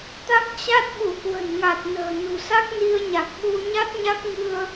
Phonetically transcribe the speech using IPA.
t̪ a˦˥ k̚ t͡ɕ a˦˥ t̚ ɓ u˧˩ k w ə̤˨˩ n ŋ a˨˩ t̚ n ə̤ː˨˩ n ṳ˨˩ s a˦˥ k̚ n i˧ ə̯ ɲ a˨˩ k̚ ɓ u˧ ɲ a˦˥ t̚ ɲ a˦˥ k̚ ŋ ɨ˧ ə̯

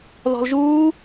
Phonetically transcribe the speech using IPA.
ð ɔ̤ l ʒ uː

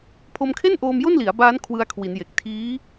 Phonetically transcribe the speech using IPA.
pʰ o˧ m kʰ e˥˩ n ʔ oː˧ m j o˥˩ n l i˩˦ a̯ b aː˦˥ n kʰ w ɯ˧ a̯ kʰ w i˩˦ n j e˨˩ k̚ tʰ iː˦˥

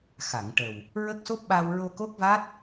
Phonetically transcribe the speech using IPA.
x a˨˩˨ ŋ ʈ ə˨˩ w | ɹ ə˦˥ k̚ s o˦˥ p̚ ɓ a˧ w ɹ o˧ k o˦˥ k̚ v a˦˥ t̚

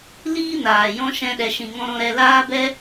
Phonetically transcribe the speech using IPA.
l iː˦ n aː˨ j ɔ̃˦ ʃ ɛ̃˦ ɗ ɛ˧ ʃ ĩ˧ ŋ ɔ̃˦ ɾ ɔ̃˦ ɾ ɛ˧ l aː˦ b ɛ˦

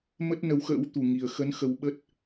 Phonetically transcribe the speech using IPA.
m ə˦˥ t̚ n ə˨˦ w x ə̰ː˧˥ w t̪ u˨˩ ŋ i˨˩ ə̯ x ə˨˦ n x ə˨˦ w ɓ ə˦˥ t̚

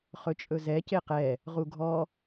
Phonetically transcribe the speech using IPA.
χ ɵ t͡ʃʼ ɵ z ɛ c e q ɛ | ʁ u ɡʱ ɔ

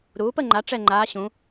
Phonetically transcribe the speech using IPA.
ɾ uː˩˥ p ə˥˨ ŋ͡ǃ a˩˥ ʈ͡ʂ ɛ˥˨ ŋ͡ǃ aː˧˥ ɕ ũ˩˥

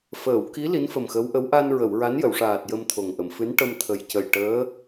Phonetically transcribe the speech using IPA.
f əː˨˩˨ w k i˧˥ l i˧˥ n f ə˨˩ m x ə˧˥ w ʔ ə˧˥ w ʔ a˧ n ɹ ə˨˩˨ w ɹ a˧˥ n j ə˨˩˨ w ʂ aː˨˩ t̚ j ə˧ m t̪ʰ o˨˩ ŋ ʔ ə˨˩˨ m f ɨ˧˥ n ʈ ə˧ m t̪ʰ ə˨˩ j c ə˨˩ j ʈ əː˧˥

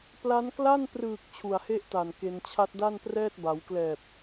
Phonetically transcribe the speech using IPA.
p l a˦˥ n k l a˥˩ n p r ɯː˨˩ k̚ t͡ɕʰ u˨˩ a̯ h e˦˥ ʔ t a˨˩ n k e˧ n t͡ɕʰ a˦˥ t̚ d a˥˩ n p r ɛː˥˩ t̚ b a˩˦ w k l ɛː˨˩ p̚

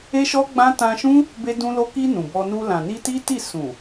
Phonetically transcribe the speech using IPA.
e˦ ʃ ɔ˦ ɡ͡b ã˦ t ã˧ ʃ ũ˦ | b e˧ d ũ˧ l o˧ k i˧ n ũ˨ b ɔ˧ n u˧ l ã˨ n i˧ t i˦ t i˦˨ s ũ˨

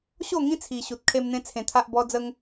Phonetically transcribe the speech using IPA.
ɕ o˥˧ ŋ ĩ˦ t͡sʰ i˨˩ ɕ u˨ t̚ kʰ e˧ m n̪ ẽ˧ t͡sʰ ẽ˧ t̪ʰ a˦ ʔ b ɔ˦ d͡z ə˦ ŋ

